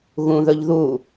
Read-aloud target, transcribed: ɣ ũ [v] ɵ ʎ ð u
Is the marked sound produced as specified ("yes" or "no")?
no